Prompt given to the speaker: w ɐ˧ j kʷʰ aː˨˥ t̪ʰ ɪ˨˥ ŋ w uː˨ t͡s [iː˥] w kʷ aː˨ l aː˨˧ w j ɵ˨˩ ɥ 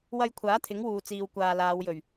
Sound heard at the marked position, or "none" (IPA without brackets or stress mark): iː˨